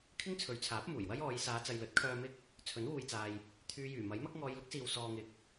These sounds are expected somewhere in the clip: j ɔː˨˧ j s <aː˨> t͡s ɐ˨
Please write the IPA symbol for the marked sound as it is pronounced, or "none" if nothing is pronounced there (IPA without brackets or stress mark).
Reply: aː˨˧